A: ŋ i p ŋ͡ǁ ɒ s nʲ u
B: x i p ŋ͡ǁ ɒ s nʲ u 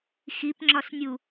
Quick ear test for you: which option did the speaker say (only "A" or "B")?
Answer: B